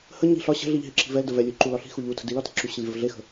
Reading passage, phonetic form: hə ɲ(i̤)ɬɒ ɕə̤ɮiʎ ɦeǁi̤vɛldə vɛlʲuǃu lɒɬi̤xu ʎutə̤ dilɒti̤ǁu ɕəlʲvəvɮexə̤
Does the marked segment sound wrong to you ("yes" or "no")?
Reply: no